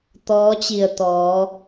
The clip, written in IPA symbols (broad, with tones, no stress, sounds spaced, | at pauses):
t̪ ɔː˧˥ t͡ɕ i˧˩ ə̯ t̪ ɔː˩˧